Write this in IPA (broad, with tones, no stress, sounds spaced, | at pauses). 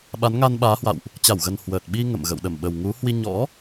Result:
ɓ a˨˦ n ŋ a˧ n ɓ aː˨˦ h w a̰˧˨ w ʔ | t͡ɕ a˧˩ w ɣ ə˨˩ n h w əː˨˩ t̚ ɓ i˧ ŋ ə̰˧˨ m ɣ ə̰˧˨ w ɗ ə˧˩ m ɓ ə˨˩ w ŋ u˨˦ h w i˧ ɲ ɔ̰˧˥